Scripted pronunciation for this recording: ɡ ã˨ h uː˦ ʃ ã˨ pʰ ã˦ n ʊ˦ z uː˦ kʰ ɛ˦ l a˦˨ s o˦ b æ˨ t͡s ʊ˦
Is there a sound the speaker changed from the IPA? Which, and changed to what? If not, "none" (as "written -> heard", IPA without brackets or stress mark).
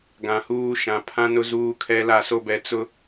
æ˨ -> ɛ˨